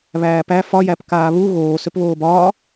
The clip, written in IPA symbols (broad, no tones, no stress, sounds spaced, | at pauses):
β æː p æ f ɒ j æ p k aː β u ɣ oː s ø p β oː b ɒː